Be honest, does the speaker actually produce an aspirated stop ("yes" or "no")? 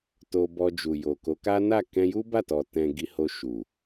no